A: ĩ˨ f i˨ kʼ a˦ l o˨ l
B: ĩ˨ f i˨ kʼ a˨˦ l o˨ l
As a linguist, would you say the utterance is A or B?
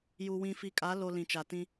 B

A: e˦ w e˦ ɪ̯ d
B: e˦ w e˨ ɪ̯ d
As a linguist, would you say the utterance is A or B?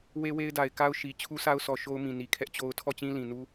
A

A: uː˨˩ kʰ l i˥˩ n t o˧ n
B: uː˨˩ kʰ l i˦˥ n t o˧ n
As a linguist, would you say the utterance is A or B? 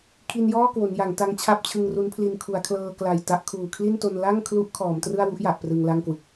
A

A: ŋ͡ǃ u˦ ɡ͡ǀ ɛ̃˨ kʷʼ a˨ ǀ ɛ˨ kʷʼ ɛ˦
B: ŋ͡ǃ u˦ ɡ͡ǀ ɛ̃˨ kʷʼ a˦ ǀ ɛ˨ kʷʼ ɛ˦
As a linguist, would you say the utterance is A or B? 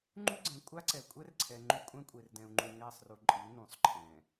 B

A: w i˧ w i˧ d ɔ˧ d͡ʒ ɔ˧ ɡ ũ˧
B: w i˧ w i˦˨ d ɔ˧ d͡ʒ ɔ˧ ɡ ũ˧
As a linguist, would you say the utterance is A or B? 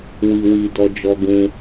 A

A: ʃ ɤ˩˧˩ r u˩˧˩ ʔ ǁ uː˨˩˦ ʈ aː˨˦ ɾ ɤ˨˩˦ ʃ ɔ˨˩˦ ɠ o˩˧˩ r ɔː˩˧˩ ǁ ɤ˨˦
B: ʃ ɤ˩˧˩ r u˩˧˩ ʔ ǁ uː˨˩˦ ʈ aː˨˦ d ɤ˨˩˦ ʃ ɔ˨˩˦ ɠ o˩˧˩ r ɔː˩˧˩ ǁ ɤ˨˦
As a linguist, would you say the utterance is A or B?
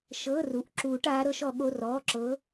A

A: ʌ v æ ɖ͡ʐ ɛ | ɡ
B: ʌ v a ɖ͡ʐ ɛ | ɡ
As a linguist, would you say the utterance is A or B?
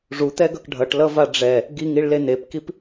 B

